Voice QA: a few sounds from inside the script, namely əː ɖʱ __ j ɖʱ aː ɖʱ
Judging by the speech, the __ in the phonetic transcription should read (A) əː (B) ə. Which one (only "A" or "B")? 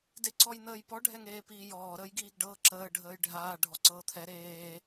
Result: A